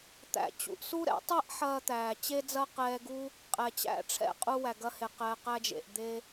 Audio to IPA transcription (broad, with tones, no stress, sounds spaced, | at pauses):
t̪ æ̰˧ t͡ɕ ṵ˧ ʔ s u˥ ɾ ɛ̰˥ tˤ ɛ˥ ʔ ħ ɐː˧ t̪ æː˩ t͡ɕ e˥ d͡z ɐ˥ q ɛː˧ ɡ u˥ | qʼ ɛ˩ t͡ɕ æ̰˥ ʈ͡ʂʰ ɛ̰˧ qʼ u˧ w æ˩ ɡ ɐ˧ h e˩ q ɛː˩ q æ˧ d͡ʒ ḛ˩ ʔ d̪ e˧